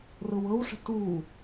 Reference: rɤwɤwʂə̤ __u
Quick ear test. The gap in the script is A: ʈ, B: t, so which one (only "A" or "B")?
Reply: B